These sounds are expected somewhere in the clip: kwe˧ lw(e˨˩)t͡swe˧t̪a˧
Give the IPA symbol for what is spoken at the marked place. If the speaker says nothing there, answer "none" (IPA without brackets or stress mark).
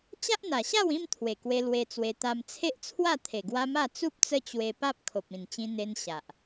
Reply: e˧